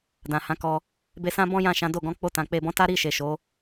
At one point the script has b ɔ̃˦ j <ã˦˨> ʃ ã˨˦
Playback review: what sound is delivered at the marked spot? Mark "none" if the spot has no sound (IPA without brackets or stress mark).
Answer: ã˦˨